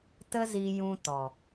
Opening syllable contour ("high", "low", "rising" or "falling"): high